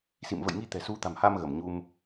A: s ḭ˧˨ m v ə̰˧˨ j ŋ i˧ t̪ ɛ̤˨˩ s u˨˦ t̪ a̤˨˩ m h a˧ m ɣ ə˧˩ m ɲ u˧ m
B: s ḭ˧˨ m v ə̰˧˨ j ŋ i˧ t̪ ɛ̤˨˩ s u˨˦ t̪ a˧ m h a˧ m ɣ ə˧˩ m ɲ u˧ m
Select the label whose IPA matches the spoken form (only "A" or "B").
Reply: A